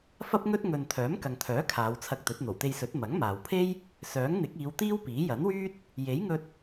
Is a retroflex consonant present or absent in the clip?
absent